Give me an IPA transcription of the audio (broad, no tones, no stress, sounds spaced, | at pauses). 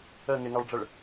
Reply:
ə ŋ ɪ ŋ ɑ ɭ ɖ͡ʐ ə ɭ